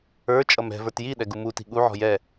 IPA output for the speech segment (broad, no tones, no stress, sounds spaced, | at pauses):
ə˞ t͡ʃʼ ʌ m ɛ̤ v ə˞ t j i ɗ ɛ ɡ u m u t i̤ ɠ u ʕ ɔ̤ j ɛ